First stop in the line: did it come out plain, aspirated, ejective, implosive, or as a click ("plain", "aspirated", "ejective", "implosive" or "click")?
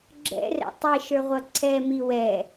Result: click